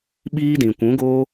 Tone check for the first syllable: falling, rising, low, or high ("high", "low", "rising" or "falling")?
high